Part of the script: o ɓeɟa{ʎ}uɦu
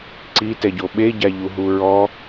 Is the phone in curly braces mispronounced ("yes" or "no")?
no